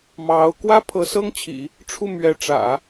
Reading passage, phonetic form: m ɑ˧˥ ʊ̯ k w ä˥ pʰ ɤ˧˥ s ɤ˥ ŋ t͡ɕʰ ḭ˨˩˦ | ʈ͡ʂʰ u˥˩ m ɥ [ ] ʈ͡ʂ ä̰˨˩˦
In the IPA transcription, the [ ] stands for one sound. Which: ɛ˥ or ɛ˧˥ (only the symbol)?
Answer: ɛ˧˥